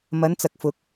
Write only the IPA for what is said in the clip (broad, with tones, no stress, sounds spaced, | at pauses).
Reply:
m ɐ˨˧ n t͡s ɐ˨ k̚ f ʊ˨˥ k̚